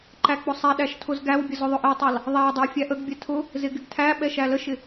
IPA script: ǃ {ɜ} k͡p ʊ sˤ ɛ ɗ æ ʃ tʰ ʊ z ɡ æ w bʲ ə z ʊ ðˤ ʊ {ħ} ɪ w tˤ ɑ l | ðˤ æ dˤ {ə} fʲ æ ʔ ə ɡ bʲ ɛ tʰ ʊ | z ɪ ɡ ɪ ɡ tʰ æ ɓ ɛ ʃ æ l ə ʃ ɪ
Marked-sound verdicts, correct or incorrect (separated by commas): incorrect, incorrect, incorrect